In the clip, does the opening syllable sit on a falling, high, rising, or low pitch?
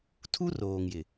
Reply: high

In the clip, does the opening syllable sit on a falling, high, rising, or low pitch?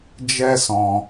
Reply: high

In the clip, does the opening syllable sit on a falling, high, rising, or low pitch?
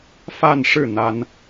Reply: falling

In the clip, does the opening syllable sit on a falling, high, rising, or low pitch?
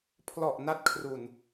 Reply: low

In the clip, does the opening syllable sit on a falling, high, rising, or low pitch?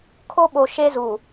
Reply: high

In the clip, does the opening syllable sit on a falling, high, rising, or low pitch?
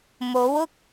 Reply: rising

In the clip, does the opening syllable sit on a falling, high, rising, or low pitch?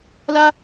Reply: high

